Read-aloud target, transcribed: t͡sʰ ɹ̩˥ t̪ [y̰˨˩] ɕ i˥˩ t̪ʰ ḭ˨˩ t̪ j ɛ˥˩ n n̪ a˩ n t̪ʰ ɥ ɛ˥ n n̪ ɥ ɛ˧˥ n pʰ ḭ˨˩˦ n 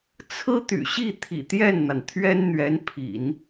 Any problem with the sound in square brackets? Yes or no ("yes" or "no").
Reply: no